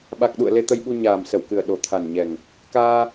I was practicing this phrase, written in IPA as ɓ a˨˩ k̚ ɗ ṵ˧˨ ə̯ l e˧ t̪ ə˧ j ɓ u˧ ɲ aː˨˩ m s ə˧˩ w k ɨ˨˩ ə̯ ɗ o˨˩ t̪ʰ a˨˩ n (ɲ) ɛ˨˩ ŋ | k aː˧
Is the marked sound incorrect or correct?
correct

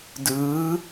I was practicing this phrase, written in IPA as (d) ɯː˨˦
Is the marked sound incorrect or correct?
correct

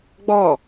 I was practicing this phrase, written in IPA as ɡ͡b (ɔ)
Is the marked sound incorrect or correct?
correct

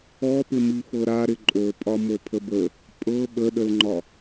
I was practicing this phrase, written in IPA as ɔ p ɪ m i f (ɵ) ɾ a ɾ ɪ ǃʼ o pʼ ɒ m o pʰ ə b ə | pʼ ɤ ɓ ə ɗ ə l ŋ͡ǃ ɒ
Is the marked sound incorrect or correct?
incorrect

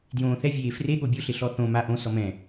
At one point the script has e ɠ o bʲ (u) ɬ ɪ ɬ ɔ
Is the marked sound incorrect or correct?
incorrect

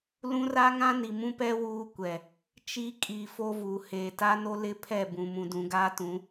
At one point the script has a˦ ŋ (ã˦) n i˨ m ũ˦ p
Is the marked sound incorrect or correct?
correct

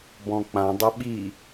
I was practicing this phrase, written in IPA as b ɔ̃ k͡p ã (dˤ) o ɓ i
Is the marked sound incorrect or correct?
correct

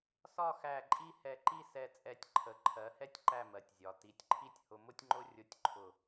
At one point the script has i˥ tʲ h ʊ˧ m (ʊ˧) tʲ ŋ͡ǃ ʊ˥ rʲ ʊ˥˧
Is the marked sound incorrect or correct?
incorrect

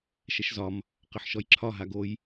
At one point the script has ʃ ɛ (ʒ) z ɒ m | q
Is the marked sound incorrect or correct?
incorrect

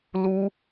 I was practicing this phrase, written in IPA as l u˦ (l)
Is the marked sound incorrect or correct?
incorrect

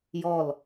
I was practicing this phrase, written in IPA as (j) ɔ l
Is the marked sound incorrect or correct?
correct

